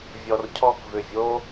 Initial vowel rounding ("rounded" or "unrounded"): rounded